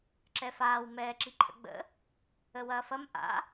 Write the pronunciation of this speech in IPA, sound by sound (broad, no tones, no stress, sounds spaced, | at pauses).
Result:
ǁ ɛ f aː w m ɛː ǁ i ǃʰ ə̰ ɡ͡b ə̰ | ə w ɐː f ɐ m ʔ a̰